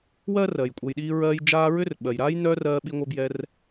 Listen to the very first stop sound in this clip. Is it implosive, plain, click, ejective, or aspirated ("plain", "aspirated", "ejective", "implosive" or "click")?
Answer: ejective